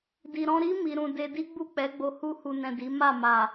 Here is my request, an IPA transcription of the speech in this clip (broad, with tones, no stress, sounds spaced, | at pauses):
d i˨ ɾ ɔ̃˧ ɾ i˦ m i˧ ɾ ũ˧ d e˧ d i˦ ɡ͡b u˦˨ k͡p ɛ˨˦ ɡ͡b o˧ h u˧ h u˨ n ɛ̃˨ d i˨˦ m a˦˨ m a˨